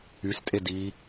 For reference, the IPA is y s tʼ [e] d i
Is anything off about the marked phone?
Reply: no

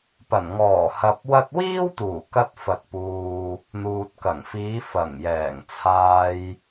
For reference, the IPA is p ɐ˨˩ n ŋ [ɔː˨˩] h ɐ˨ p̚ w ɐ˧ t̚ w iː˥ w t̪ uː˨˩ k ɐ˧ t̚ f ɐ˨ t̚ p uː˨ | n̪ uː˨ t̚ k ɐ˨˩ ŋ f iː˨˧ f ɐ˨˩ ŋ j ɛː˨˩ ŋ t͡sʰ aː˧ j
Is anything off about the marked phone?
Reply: no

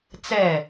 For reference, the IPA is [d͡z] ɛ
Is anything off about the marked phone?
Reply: yes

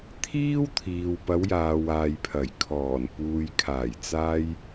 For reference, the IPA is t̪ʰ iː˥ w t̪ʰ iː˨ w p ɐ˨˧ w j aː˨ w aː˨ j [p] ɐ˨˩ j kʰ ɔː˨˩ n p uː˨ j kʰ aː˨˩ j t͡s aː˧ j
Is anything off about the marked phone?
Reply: yes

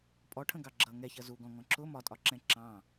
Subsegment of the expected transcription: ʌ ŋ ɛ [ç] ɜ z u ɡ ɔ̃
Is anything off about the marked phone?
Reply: no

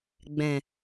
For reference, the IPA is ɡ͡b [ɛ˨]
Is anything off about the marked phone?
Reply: yes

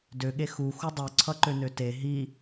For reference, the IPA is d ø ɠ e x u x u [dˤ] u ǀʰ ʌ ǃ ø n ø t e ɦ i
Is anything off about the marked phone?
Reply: no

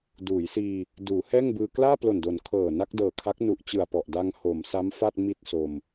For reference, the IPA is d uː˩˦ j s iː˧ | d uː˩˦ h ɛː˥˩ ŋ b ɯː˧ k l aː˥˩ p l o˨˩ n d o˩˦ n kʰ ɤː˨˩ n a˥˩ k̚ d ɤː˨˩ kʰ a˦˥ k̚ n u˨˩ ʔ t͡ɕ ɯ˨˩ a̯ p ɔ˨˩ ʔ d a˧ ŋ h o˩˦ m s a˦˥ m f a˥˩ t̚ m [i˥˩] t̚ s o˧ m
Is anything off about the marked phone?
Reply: no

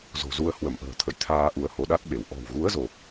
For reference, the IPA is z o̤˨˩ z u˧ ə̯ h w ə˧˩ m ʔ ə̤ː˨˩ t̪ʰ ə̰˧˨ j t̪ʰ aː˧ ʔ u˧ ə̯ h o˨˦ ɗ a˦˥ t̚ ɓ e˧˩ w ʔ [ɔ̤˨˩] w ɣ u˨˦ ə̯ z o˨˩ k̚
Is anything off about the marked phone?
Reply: no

